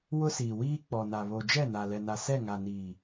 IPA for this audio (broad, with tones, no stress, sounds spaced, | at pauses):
w ʊ˦ s iː˨ w iː˦ k͡p ɔ˨ n a˨ β o˨ d͡ʒ ɛ˦˨ n a˨ l ɛ˨ n a˨ s ɛ˦˨ ŋ a˨ n iː˨